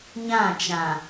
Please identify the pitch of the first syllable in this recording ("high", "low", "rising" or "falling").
falling